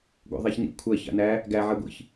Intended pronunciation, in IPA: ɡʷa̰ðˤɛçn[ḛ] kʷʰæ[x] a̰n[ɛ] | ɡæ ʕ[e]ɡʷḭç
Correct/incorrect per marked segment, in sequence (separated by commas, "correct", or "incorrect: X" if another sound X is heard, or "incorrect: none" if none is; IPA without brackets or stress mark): incorrect: ḭ, incorrect: ç, incorrect: æ, incorrect: ɛ